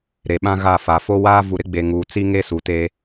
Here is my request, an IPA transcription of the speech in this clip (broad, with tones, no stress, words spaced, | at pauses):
ɾe˨ɓã˦ɣa˦˨fa˨ fo˦waː˦ vu˨ɾɪ˦ɡ͡be˨ŋuː˨ t͡si˦ŋe˦su˨ te˦